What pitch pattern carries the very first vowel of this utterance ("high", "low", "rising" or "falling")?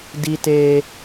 high